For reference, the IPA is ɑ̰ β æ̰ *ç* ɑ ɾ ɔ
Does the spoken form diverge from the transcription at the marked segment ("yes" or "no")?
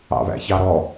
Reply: no